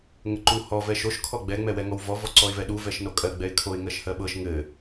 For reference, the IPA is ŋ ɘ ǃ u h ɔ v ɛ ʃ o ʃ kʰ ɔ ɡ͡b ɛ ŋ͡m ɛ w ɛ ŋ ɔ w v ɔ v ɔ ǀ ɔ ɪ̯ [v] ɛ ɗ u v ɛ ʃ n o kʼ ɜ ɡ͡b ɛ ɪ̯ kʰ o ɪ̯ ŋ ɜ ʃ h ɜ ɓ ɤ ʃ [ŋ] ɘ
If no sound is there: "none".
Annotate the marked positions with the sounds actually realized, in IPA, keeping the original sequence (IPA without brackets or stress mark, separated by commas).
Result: v, ŋ